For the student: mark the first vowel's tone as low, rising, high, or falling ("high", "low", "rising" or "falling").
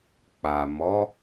low